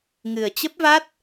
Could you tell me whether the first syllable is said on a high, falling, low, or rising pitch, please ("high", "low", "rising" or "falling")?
low